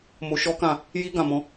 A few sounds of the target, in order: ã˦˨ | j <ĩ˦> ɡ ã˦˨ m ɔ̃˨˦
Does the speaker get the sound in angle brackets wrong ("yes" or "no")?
yes